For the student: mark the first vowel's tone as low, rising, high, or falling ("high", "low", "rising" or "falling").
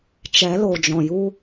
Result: rising